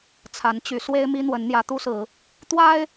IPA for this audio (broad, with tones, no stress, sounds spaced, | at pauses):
t͡sʰ a˨˦ n t͡ɕ y˨˦ s w e˦ ɪ̯ m i˦ n̪ w ə˨˦ n n̪ j ä˨˦ t̪ u˦ s ɹ̩˨˦ | t̪ w a˦ ɪ̯